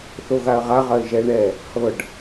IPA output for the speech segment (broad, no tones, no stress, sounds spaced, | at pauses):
θ o ɣ a ə̯ ʁ a ʁ ɐ ɪ̯ ʒ ɛ ɳ ɛ | h ɤ ɖ